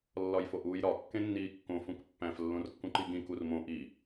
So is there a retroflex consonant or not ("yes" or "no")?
no